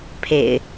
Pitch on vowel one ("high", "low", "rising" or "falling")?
low